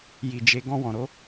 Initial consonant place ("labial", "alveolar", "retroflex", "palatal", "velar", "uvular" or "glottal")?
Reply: palatal